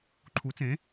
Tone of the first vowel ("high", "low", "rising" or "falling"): rising